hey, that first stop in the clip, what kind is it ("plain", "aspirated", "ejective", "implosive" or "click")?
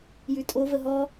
ejective